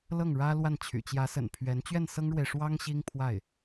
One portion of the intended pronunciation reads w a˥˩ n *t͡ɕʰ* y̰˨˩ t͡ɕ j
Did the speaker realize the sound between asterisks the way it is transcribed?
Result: yes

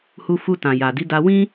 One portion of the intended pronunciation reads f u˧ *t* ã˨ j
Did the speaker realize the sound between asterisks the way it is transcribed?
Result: yes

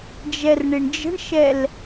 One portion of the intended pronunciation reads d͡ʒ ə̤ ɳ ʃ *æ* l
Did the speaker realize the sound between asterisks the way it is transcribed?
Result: no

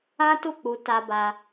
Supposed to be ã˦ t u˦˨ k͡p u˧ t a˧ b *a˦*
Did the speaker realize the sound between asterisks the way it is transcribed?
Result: no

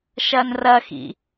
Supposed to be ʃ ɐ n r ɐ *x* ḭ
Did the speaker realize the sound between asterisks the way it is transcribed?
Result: yes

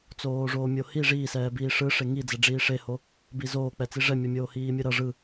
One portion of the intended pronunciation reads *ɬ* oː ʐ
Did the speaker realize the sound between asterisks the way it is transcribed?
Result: no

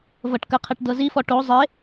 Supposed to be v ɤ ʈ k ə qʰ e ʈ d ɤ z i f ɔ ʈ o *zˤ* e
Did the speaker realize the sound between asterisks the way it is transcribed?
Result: yes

